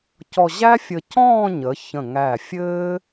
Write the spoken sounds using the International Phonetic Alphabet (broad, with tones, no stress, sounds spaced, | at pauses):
c ɔ˧ ʑ æ˥ fʲ ə˧ c ɔ̃ː˥˧ ɲ ə˩˧ ç ə̃˧˩ ŋ æ˧˩ fʲ ɘː˥